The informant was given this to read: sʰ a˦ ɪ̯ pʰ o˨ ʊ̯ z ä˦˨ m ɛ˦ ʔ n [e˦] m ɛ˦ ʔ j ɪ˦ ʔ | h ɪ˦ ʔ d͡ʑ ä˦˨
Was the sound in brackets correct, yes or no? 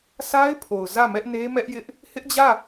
yes